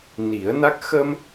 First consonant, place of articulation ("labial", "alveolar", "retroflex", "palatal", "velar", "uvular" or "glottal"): alveolar